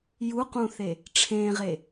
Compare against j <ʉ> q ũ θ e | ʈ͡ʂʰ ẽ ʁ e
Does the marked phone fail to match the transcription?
yes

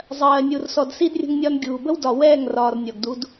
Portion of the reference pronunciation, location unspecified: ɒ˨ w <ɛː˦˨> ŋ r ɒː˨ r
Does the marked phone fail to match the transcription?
no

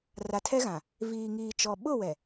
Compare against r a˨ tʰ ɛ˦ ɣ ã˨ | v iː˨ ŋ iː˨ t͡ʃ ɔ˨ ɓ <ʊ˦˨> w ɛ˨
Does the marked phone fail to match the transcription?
no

